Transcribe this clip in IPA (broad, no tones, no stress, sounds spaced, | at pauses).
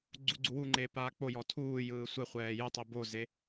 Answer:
ɡ͡ǀ u ɡ͡ǀ u w u ŋ͡ǃ eː p aː k͡p o j ɔ tʰ uː j ɯː sʷ ɛ χʷ ɛː j ɯ tˤ i b o z e